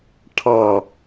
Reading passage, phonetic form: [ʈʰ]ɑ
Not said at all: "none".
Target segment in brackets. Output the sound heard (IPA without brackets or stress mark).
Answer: ʈʰ